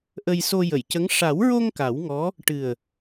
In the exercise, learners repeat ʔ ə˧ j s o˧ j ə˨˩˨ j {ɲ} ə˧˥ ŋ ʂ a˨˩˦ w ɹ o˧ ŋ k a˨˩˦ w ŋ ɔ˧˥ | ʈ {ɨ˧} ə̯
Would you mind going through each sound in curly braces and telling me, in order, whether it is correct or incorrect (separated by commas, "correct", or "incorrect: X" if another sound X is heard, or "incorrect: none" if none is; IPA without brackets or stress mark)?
incorrect: c, incorrect: ɨ˨˩